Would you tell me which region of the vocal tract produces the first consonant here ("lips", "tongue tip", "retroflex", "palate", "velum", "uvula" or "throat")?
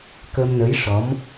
velum